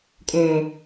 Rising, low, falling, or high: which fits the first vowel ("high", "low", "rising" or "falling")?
low